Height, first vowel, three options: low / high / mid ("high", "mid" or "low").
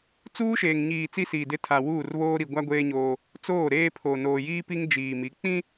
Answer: high